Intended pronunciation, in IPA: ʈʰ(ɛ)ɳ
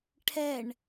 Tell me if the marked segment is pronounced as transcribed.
yes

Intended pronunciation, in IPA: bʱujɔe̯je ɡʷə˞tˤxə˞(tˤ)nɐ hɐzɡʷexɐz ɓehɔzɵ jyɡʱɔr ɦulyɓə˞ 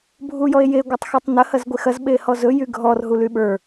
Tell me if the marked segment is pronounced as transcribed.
yes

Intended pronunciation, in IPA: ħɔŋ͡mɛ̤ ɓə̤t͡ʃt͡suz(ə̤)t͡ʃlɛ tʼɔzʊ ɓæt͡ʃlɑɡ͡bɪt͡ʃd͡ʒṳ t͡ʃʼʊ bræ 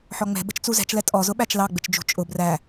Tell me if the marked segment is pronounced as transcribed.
no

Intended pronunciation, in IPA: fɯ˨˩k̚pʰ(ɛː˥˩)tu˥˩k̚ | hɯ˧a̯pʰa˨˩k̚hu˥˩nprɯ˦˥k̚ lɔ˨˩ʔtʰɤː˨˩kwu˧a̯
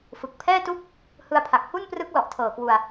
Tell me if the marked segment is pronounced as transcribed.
yes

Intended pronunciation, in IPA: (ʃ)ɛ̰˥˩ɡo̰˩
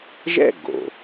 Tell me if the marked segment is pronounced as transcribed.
no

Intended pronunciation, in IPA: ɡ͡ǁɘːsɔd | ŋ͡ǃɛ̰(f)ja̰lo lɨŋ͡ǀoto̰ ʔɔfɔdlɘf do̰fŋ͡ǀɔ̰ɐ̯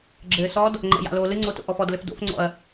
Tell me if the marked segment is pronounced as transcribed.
no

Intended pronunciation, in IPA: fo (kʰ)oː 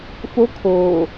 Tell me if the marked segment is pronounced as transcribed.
yes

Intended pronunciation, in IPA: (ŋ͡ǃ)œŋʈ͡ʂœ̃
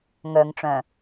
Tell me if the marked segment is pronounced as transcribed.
no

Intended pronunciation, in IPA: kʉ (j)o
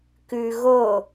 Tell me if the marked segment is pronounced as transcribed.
no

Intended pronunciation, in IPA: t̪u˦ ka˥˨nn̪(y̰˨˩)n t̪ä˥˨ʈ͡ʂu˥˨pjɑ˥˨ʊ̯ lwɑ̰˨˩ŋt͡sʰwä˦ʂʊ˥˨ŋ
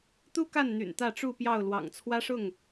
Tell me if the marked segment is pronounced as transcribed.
yes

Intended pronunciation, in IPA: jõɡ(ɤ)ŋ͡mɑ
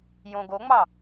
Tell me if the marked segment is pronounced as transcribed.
no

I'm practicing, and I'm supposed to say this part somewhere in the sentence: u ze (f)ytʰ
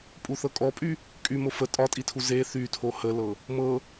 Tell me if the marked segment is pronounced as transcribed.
no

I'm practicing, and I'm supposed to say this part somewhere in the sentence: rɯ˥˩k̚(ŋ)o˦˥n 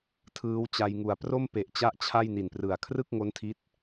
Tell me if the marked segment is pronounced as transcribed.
yes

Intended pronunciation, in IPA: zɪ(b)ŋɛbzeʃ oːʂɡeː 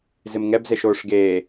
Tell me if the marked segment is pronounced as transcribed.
no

